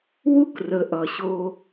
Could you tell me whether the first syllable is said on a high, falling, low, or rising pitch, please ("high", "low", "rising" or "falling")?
high